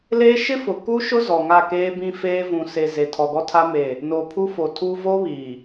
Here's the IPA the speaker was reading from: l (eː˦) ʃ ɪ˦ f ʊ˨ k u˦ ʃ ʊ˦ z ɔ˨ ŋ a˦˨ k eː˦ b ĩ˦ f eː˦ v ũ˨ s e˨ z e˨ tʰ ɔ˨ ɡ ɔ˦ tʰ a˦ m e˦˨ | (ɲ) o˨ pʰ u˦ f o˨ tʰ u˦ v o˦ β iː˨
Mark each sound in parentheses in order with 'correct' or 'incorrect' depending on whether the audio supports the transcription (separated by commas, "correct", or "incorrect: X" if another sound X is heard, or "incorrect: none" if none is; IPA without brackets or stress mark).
correct, incorrect: n